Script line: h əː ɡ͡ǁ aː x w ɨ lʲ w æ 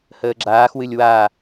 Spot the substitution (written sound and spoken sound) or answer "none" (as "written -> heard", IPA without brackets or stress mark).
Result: æ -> a